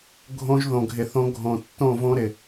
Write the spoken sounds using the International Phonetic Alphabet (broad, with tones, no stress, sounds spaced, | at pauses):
ɡʱ õ˦ ʒ ð õ˨ ɡʱ ɪ˨ θ õ˦ ɡʱ õ˨ tː õ˦˨ v õ˦ ɾ ɪ˨